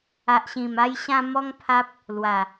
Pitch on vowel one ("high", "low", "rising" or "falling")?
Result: low